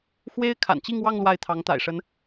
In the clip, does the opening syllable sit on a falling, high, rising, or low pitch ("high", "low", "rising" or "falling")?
high